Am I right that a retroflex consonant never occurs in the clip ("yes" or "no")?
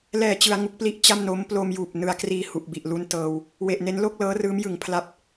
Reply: yes